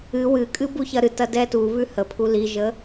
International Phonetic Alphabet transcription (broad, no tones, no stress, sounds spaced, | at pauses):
ɨ w ɨ kʼ ɨ b u ç ɐ ɾ ɨ t ɐ d ɛ t u β ʉ h ə pʰ u l i ʒ ə